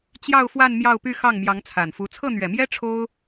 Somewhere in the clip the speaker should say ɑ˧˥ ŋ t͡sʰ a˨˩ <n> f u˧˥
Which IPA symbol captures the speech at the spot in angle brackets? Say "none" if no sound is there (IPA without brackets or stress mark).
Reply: n